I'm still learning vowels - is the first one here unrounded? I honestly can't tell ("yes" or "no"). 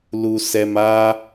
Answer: no